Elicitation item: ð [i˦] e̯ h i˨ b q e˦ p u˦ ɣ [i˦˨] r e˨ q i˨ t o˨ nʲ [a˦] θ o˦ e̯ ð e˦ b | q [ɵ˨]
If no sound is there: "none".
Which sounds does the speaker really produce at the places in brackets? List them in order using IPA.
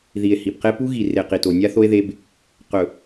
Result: i˨, i˨, a˦, ɵ˨

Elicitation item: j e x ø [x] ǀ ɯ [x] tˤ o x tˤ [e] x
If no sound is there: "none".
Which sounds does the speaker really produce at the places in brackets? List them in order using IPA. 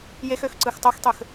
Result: x, x, ø

